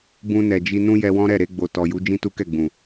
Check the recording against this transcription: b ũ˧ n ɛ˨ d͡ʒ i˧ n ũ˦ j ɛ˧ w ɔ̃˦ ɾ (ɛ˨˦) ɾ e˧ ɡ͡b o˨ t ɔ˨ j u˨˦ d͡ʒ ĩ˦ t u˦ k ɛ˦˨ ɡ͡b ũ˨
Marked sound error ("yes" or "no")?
yes